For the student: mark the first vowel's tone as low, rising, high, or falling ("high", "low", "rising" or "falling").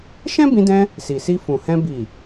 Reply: high